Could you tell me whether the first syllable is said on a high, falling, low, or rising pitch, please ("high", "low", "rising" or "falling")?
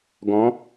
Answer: rising